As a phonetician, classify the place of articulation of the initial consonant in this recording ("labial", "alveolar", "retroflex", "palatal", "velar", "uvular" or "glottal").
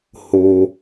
glottal